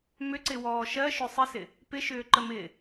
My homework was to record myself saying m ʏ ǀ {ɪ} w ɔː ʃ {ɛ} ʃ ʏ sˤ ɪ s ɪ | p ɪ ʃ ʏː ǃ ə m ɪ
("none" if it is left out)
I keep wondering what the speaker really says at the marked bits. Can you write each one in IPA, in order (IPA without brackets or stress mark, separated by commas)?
ɪ, ɜ